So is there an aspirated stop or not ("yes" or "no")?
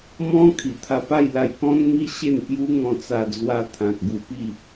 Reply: yes